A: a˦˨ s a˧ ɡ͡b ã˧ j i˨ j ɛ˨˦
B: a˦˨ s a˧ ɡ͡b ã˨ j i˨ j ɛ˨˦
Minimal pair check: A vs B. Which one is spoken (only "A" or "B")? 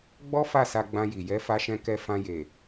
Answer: A